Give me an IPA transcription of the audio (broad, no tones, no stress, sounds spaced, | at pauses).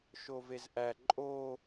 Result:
ʃ o v e z ʔ æ ǃʼ o